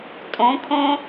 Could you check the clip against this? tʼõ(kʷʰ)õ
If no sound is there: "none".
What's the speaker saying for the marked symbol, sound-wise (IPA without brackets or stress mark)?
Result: kʰ